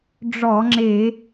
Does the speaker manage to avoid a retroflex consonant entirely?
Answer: no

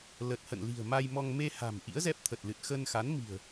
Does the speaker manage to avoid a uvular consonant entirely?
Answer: yes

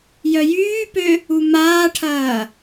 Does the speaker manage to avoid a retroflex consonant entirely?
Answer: no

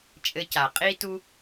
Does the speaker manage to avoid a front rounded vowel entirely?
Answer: yes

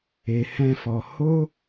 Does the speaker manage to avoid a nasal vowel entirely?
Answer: no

